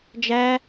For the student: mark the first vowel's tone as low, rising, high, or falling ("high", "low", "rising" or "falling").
high